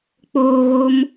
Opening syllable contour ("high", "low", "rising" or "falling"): low